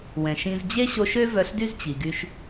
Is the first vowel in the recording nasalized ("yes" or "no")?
yes